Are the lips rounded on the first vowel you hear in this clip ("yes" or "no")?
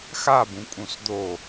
no